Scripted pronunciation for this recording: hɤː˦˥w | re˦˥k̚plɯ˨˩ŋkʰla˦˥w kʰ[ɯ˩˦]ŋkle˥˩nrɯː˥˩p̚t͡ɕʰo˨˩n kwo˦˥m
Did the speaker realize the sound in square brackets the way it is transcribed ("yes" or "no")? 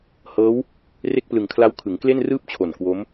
yes